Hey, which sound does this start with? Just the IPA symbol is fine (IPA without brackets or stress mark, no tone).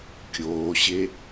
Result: kʲ